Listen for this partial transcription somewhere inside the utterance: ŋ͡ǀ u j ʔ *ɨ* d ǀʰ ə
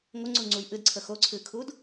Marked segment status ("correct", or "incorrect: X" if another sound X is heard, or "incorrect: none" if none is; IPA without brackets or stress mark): correct